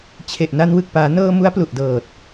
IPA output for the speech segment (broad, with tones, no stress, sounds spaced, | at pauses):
t͡ɕʰ e˨˩ ʔ n a˧ n w ɯ˨˩ k̚ p aː˩˦ n ɤː˧ m u˦˥ a̯ p l u˨˩ ʔ d ɤː˨˩ t̚